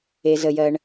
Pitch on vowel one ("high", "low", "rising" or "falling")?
low